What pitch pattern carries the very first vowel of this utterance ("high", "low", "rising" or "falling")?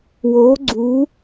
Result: rising